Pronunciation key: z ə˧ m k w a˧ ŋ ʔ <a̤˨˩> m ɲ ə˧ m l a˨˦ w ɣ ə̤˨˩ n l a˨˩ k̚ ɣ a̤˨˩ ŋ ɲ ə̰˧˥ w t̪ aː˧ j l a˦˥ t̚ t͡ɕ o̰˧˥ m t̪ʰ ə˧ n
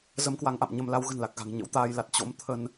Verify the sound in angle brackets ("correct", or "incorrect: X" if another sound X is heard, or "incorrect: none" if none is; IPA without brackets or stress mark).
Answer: incorrect: a̰˧˨